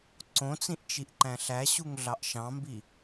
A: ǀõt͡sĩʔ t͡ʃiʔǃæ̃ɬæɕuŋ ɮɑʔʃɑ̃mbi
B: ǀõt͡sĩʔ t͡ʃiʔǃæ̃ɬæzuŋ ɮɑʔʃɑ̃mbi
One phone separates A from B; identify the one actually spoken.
A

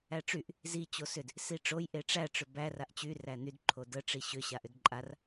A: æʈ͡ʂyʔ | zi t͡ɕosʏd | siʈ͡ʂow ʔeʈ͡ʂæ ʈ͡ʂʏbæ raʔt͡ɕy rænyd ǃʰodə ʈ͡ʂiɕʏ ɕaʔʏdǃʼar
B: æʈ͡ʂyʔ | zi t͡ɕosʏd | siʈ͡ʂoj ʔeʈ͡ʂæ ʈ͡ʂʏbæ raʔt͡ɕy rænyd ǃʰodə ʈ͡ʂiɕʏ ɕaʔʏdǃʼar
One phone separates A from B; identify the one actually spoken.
B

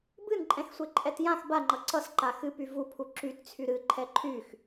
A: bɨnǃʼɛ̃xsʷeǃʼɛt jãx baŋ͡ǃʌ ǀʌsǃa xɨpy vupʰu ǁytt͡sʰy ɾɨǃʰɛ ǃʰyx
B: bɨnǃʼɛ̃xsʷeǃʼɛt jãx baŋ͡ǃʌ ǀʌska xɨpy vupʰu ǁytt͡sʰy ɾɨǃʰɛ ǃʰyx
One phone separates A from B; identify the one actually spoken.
A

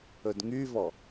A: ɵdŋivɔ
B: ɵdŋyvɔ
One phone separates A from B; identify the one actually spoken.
B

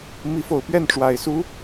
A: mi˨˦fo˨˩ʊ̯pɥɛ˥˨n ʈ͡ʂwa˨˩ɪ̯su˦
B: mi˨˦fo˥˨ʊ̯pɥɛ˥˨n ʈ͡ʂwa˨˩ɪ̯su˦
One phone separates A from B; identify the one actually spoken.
A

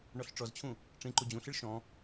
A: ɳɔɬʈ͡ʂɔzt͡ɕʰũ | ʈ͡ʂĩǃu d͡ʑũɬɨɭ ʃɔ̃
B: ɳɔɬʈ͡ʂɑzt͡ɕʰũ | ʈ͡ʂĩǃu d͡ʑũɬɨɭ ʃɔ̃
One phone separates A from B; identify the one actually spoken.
A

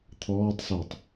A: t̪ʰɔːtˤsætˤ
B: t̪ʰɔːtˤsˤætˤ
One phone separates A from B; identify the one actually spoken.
A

